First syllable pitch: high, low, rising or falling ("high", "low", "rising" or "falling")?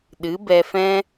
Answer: rising